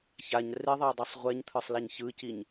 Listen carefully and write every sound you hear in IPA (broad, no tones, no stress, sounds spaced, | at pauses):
ç a ɲ r e ðˤ a dˤ ɛ sˤ ʁʷ ɛ ɲ t̪ʰ ɯ sˤ l a ɲ ç ɯ c i ɲ